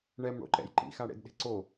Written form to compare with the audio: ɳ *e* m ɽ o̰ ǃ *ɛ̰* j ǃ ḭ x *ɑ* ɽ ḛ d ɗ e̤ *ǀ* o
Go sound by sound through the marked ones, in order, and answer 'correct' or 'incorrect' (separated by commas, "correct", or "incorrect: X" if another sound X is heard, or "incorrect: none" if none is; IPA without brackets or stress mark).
incorrect: ɛ, correct, incorrect: a, correct